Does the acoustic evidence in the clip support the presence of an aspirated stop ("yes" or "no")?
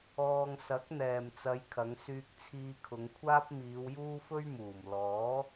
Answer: yes